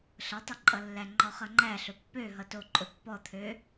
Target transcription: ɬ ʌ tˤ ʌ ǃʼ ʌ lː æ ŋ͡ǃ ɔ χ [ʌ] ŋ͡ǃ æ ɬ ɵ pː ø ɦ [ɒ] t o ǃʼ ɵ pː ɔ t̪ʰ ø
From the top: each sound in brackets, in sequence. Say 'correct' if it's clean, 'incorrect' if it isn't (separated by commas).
correct, incorrect